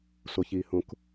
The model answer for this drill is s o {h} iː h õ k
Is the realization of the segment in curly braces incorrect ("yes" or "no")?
yes